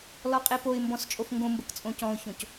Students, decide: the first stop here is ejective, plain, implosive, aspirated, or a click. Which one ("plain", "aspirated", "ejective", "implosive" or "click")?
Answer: ejective